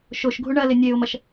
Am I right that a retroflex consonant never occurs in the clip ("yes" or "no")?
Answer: no